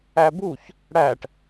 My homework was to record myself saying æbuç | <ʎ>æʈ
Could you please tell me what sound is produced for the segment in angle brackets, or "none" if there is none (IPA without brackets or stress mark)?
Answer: ɽ